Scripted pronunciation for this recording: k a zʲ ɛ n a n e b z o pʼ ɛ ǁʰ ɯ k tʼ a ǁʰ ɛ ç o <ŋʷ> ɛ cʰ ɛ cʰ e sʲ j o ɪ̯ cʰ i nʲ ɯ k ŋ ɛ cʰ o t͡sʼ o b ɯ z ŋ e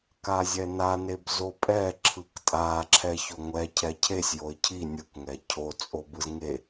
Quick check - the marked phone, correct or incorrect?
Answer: correct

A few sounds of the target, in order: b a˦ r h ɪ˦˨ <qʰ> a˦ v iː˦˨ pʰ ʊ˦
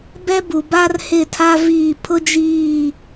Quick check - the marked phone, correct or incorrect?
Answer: incorrect: tʰ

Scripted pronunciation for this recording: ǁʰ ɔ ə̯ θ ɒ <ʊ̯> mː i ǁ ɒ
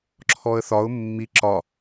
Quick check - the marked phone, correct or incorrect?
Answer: correct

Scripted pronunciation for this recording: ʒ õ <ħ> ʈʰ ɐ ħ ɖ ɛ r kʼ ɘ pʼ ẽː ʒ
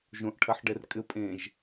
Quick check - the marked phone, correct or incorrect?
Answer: incorrect: ʔ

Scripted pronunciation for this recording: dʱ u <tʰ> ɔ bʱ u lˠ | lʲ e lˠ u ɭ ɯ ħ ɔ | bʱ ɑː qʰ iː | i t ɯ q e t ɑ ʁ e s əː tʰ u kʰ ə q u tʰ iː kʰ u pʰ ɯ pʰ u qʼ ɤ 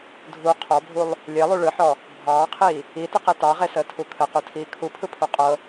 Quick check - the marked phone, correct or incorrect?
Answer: incorrect: qʰ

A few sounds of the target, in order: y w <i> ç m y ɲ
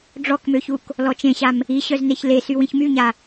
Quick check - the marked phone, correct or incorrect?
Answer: incorrect: ĩ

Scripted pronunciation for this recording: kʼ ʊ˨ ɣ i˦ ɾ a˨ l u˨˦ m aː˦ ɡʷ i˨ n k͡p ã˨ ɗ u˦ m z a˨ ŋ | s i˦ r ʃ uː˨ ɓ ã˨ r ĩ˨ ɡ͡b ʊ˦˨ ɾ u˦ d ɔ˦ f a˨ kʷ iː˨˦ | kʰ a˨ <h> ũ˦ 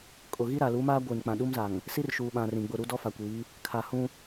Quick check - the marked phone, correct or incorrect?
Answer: correct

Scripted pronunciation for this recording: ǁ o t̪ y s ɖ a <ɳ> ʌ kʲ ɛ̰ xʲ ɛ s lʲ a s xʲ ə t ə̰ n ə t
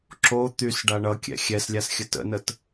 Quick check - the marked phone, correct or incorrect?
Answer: correct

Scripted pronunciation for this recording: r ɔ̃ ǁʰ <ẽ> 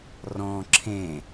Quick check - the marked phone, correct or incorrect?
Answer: correct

